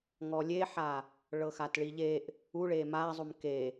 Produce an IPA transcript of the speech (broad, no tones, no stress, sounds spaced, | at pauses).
ŋ ɔ lʲ e ħ a | ɭ ɤ x a t ɭ i ʎ e ʔ | u ɭ e m a zˤ u m k e